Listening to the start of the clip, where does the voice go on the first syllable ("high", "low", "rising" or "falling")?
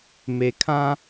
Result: low